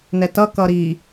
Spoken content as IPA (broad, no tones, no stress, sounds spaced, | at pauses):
n ɛ t ʌ k ʌ ɾ i